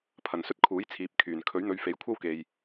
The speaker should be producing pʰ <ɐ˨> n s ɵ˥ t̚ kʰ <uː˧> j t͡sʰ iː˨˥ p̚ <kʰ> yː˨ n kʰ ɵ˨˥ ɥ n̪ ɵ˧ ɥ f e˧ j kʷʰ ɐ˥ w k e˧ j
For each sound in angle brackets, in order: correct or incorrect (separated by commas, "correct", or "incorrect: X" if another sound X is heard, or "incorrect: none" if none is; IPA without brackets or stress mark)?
correct, incorrect: uː˨˥, correct